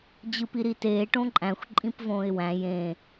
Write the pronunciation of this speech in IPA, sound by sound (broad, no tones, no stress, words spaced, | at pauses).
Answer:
d͡ʑɯpiɾiteː ʈõǃʼæ̃xʷ ǃʼĩpvõːɪ̯wæ̃ jẽ